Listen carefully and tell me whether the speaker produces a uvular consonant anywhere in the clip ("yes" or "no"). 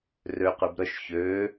yes